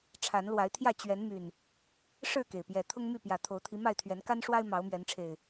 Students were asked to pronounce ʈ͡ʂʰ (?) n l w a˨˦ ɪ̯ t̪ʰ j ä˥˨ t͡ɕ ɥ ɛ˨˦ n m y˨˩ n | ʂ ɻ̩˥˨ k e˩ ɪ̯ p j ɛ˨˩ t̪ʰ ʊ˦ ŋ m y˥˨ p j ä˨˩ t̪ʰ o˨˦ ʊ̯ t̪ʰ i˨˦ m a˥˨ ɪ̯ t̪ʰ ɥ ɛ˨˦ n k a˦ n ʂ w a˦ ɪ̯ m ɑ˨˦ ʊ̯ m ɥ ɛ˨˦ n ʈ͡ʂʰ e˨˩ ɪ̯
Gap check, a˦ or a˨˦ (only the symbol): a˨˦